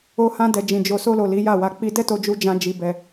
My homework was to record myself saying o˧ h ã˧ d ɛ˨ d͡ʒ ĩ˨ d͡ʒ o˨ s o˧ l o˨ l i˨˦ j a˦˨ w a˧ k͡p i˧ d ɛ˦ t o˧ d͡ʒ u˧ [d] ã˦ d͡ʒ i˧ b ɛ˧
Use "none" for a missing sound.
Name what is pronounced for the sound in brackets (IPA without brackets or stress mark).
d͡ʒ